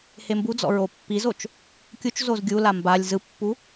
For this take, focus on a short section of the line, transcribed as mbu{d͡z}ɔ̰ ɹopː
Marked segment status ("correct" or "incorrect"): correct